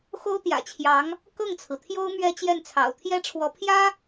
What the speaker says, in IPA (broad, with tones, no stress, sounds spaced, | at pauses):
x o˥ ʊ̯ t̪ j ä̰˨˩ t͡ɕʰ j ɑ˧˥ ŋ | k ɤ˥˩ ŋ t͡sʰ ɹ̩˩ t̪ʰ j o˥ ʊ̯ m ɥ ɛ˥ t͡ɕ j ɛ˥˩ n t͡sʰ ɑ̰˨˩ ʊ̯ t̪ʰ j ɛ˥ ʈ͡ʂʰ w ɔ˧˥ pʰ j ä˥